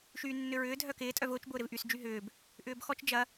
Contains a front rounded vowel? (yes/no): yes